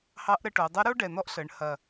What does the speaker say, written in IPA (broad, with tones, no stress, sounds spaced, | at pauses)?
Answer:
h ɑ˧˥ ʔ ɾ ə˧ ʈ o˩˧ dˤ ə˧˥ ɾ o˥ ɖ ɛ˨˩ n̪ ɔ˧˥ ʔ ɬ ə˩˧ ɳ h ɐ˨˩